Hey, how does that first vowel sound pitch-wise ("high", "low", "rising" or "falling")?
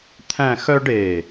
falling